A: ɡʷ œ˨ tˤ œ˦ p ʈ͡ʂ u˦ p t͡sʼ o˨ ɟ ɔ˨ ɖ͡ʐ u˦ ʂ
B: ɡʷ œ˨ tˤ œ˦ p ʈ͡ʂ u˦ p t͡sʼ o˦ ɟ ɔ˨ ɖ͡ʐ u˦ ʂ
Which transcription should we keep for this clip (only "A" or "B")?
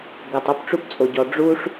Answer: A